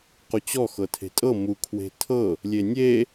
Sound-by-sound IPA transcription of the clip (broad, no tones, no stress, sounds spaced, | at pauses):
q u t͡ɕ ɔ x ɤ tʰ e̤ tʼ ɤ m u kʰ w e̤ tʰ ɤ | lʲ e nʲ e